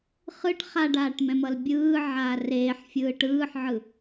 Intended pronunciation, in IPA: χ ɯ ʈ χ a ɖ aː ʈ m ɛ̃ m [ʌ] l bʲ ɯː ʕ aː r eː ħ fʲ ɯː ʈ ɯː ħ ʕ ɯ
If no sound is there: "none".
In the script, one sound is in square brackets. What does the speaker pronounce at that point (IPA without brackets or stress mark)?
ʌ